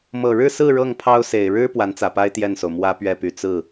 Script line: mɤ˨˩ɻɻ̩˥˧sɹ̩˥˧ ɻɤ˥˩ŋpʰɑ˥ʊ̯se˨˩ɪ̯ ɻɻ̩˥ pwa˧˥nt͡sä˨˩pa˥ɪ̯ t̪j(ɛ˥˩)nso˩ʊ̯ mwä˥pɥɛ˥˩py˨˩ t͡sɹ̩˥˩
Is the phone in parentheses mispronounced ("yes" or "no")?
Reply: no